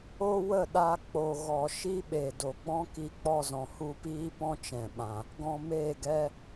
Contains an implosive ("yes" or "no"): yes